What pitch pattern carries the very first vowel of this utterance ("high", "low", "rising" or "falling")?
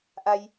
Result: low